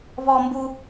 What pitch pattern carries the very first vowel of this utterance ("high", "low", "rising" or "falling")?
high